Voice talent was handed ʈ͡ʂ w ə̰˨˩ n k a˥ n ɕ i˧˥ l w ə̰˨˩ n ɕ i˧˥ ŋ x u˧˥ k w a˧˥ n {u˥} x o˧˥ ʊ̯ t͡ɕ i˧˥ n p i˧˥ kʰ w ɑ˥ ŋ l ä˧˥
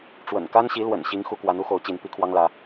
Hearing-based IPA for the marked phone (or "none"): u˥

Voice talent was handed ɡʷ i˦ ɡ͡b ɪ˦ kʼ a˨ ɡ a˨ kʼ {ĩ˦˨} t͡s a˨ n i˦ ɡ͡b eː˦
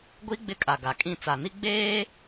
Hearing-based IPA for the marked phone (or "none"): ĩ˦˨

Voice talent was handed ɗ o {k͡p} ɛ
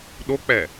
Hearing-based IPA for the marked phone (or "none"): k͡p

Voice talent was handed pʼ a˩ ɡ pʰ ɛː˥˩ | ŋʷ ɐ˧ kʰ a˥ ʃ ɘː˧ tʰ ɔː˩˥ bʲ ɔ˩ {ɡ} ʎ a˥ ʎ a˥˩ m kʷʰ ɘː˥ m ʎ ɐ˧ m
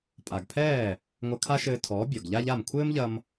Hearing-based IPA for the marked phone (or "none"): ɡ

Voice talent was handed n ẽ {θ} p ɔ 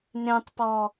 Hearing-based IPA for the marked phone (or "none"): tˤ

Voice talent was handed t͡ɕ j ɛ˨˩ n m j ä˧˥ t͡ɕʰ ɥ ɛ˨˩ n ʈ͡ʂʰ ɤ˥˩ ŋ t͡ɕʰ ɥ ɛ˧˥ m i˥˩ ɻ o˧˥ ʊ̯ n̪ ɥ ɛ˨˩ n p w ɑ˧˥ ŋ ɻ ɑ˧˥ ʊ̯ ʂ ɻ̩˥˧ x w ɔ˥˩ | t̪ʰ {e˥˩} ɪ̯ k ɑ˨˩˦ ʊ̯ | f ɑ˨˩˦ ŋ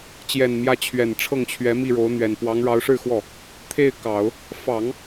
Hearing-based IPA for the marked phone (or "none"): e˥˩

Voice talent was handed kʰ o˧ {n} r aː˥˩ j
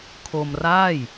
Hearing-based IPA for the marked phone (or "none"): m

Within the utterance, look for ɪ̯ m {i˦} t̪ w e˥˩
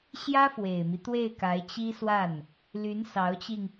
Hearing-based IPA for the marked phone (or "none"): i˦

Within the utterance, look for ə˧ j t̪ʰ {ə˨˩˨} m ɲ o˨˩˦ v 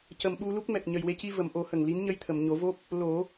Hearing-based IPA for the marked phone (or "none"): ə˨˩˨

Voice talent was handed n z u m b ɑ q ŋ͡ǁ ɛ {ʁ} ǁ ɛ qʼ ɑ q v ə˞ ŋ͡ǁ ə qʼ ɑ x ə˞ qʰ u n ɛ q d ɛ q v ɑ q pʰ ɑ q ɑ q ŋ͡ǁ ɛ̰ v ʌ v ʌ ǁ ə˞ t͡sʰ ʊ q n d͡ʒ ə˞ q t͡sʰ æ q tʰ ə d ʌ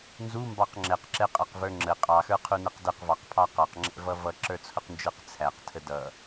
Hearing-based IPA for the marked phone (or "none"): q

